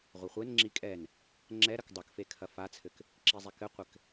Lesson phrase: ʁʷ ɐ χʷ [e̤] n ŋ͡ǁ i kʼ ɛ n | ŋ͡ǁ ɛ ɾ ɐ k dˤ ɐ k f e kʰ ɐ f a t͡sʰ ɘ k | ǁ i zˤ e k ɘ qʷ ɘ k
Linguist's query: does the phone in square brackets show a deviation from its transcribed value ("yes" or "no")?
yes